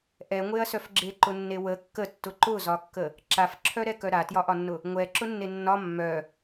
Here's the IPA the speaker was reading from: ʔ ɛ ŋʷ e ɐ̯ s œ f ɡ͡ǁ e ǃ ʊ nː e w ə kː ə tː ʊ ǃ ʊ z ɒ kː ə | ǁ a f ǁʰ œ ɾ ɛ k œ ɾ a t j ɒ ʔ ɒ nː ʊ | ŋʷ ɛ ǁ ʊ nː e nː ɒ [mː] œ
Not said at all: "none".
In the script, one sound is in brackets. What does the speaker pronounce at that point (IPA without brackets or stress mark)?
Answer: mː